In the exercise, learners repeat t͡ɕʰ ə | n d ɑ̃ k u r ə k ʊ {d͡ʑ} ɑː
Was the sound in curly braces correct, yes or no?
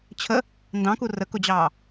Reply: yes